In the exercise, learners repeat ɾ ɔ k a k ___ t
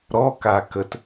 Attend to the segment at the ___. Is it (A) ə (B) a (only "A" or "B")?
A